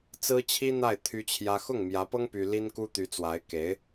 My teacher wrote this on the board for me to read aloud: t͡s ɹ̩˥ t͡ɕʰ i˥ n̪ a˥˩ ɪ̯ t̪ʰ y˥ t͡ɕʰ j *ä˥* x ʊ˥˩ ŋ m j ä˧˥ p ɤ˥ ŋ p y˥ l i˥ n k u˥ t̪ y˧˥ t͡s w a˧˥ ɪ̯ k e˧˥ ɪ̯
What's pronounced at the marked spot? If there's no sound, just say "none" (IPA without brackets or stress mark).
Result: ä˥